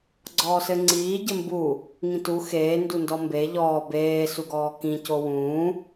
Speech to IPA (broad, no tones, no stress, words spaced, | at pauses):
ɡ͡ǀɔːsɘŋ͡ǀiː ɟɘmbu | ŋĩtu xeː ndundɔmbe ʎɔː beː suɡɔːkĩ cowũː